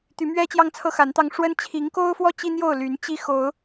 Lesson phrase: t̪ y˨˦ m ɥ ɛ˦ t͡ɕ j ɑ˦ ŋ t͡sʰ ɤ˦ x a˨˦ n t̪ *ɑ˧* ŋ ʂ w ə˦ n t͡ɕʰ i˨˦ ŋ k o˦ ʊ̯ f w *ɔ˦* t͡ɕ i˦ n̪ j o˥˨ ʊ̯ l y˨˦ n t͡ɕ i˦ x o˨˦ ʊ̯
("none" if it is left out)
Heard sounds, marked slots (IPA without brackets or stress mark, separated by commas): ɑ˧, ɔ˦